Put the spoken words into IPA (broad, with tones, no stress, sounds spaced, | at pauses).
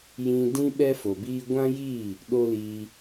j ĩ˧ d ĩ˦ ɓ ɛ˦ f o˨ b iː˦ ɡʷ ã˦ j i˦˨ | ɗ o˦ l iː˧